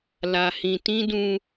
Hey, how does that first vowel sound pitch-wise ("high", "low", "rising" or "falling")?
low